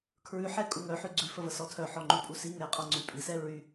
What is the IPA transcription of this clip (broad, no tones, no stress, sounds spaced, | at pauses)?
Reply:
kʰ ɹ ʉ ħ ɛ kʼ u ŋ œ ħ ʉ ɡ͡ǀ ʉ f ə v ə s ɔ tʰ œ ħ ɔ ŋ͡ǃ ʉ pʼ u s i ŋ ɛ qʼ ɔ ŋ͡ǀ y pʼ i s ɛ ɹ y